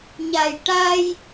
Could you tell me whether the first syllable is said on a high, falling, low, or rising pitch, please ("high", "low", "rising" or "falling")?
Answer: low